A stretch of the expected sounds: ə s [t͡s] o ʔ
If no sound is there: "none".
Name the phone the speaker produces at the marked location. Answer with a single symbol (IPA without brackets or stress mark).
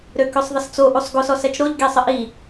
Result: t͡s